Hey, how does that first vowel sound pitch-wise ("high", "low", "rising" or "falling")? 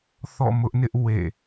falling